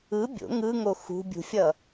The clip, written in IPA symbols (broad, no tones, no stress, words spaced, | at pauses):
ɯ bʲo̰ ŋɯŋo xṳbʲṳfʲʌ